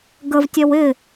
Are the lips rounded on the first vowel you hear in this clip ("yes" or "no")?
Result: no